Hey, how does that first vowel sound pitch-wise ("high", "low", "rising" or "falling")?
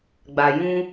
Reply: low